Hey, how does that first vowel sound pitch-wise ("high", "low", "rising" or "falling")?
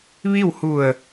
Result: falling